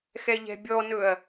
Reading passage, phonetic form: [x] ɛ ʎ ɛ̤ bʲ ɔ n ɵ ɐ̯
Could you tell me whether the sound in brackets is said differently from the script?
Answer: no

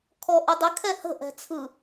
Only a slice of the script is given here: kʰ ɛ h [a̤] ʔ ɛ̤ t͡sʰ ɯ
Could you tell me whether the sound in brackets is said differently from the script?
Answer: yes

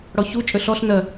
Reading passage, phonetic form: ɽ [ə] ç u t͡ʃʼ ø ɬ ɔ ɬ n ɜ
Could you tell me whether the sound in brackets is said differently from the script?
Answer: yes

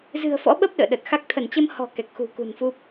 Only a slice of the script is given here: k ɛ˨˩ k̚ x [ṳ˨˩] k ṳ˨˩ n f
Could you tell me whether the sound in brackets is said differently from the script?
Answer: no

